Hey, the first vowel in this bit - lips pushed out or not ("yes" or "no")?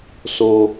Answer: yes